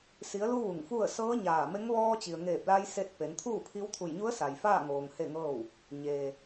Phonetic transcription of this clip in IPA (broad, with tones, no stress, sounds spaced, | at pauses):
s i˩˧ ə̯ l u˧ ʋ u˧˩ ŋ f u˥˨ ə̯ s ɤː˧˥ ɲ aː˧˩ m e˧˥ ŋ ʋ ɔː˧ t͡ɕ i˩ ə̯ ŋ eː˧˩ p̚ l a˧ j s e˧ t̚ p e˩˧ n t̪ʰ uː˥˨ pʰ i˧˥ w t̪ʰ u˧˩ j ɲ u˧˥ ə̯ s a˩ j f aː˥˨ ŋ oː˩ ŋ h e˥˨ ŋ ɤː˥˨ w | ɲ eː˩